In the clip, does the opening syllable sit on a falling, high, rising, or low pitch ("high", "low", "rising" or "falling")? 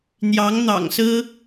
rising